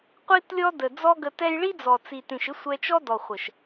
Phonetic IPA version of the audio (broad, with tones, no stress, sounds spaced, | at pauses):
qʷ i˦ t lʲ ɔ˦ d ə˨ d͡z ɔ˦ ɡ ə˧ t ɛ˦ j ɭ i˦ d͡z ɔ˨ t͡s i˨ t ĩ˨ ʃ ɪ˦ sʷ ɛ˧ t͡ʃ ɔ˦ d ɔ˨ χʷ ɜ˨ ʃ